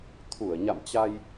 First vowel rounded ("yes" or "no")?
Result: yes